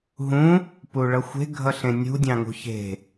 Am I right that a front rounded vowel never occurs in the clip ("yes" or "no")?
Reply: yes